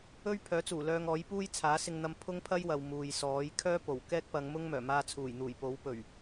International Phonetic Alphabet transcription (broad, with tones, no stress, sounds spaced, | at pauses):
ɵ˥ ɥ pʰ œː˨˥ t͡s uː˨˩ l œː˧ ŋ ɔː˨˥ j p uː˥ j t͡sʰ aː˨˥ s ɪ˧ ŋ n̪ ɐ˧ m pʰ ʊ˥ ŋ pʰ ɐ˥ j w ɐ˨ w m uː˨ j s ɔː˨˥ j kʰ œː˥ p o˨˩ w k ɛː˥ k̚ p ɐ˨˧ ŋ m ʊ˥ ŋ m œː˨˩ m aː˧ t͡sʰ uː˨˩ j n̪ uː˨˩ j p o˨˥ w p ɵ˨˩ ɥ